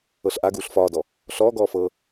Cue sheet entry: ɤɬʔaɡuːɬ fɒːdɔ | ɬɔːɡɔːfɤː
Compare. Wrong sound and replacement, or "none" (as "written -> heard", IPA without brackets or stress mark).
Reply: none